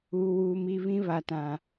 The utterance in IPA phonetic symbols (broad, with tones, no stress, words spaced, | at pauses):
uː˨wuː˨mi˦˨ βĩ˦βa˨tã˨